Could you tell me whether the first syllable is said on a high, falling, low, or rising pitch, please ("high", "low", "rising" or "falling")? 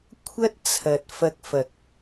high